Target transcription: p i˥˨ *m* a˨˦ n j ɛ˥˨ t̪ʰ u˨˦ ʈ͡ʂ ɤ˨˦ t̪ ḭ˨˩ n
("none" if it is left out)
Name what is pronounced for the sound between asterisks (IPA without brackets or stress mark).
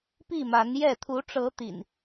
m